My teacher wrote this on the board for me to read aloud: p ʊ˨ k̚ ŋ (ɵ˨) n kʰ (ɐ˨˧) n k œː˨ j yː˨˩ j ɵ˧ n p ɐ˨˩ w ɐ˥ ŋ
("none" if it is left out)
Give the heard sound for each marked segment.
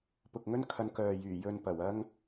ɵ˥, ɐ˨˧

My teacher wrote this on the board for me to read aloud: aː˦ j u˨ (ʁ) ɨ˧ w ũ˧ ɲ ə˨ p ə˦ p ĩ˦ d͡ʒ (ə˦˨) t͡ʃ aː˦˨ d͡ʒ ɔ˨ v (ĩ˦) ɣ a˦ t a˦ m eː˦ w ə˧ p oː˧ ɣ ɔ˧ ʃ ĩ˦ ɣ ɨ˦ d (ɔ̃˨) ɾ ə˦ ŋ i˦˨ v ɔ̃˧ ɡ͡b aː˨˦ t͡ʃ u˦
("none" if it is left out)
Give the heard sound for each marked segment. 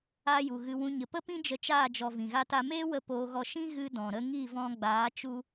ɣ, ə˧, ĩ˨, ɔ̃˨

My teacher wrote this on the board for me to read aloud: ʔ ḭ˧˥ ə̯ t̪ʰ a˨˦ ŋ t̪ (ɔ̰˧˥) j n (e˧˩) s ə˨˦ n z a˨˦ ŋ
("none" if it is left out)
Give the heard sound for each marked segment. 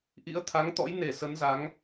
ɔ̰˧˥, e˧˩

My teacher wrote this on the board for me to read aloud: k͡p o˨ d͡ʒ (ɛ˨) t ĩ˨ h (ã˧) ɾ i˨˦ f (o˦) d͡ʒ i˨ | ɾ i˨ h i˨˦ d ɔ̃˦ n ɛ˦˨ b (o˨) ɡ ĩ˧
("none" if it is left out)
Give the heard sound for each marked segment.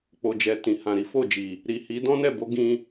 ɛ˨, ã˨, o˦˨, o˨˦

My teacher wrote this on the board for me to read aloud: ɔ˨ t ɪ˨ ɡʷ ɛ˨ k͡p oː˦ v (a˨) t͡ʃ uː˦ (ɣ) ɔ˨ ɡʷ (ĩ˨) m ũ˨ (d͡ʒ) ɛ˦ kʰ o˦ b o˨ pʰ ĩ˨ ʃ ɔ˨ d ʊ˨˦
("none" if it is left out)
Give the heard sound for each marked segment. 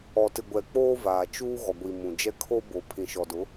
aː˨, ɣ, i˨, d͡ʒ

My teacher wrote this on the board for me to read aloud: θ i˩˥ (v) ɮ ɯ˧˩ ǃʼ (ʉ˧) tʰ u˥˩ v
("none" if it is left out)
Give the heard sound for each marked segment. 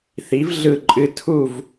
v, ɨ˧

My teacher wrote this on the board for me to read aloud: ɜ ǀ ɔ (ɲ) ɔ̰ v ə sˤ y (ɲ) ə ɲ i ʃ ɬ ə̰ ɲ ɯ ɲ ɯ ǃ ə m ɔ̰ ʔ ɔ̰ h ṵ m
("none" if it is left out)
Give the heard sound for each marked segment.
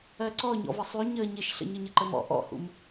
ɲ, ɲ

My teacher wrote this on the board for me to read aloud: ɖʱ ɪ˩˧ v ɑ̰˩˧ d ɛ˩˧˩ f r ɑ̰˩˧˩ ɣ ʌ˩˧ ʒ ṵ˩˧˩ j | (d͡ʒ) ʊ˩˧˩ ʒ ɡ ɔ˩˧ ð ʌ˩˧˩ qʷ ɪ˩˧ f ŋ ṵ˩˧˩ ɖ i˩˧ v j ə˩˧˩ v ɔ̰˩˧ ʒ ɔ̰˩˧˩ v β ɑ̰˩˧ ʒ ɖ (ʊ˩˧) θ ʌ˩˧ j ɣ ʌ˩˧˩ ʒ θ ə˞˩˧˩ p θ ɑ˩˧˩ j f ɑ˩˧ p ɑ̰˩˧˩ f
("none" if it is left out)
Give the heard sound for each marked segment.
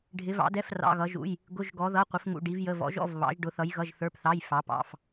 ɡ, ʊ˩˧

